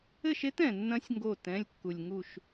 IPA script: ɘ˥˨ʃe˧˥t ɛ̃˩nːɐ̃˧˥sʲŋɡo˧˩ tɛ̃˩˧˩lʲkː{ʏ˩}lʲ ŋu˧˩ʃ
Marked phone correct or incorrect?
incorrect